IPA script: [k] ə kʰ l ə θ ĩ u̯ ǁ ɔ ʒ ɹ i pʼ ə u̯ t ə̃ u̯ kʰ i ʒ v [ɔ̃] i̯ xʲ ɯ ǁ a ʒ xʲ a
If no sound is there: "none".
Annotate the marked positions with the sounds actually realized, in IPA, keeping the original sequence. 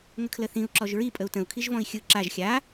ŋ, ɔ̃

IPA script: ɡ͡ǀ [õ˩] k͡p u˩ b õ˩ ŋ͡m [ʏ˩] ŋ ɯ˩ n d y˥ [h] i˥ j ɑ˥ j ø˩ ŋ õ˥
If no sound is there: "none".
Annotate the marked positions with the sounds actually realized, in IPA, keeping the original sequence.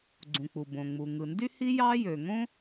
ũ˩, u˩, h

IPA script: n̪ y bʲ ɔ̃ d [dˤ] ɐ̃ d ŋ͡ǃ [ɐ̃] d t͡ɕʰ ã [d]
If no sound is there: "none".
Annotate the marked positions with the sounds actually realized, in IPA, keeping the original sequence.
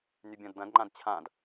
d̪, ã, d

